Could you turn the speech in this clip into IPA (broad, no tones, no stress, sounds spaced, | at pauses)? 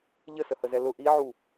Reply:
ʎ ə s ə h ə z ɛ l ʊ ʔ i ʕ u